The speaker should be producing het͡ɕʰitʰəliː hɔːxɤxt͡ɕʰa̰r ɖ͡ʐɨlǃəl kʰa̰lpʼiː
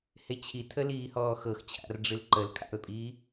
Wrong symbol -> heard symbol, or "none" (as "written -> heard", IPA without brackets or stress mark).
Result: none